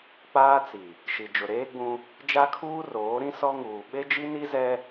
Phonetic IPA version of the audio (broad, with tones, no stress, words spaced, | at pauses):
k͡paː˦t͡si˨ | ʃi˨d͡ʒʊ˨ɾeː˦ɡ͡bũ˦ | d͡ʒa˦kʰuː˦ roː˨˦ɾĩ˦ sɔ˦ŋuː˨ ɓe˦d͡ʒi˦ni˦zɛ˦